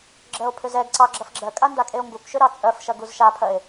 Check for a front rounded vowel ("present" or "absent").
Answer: present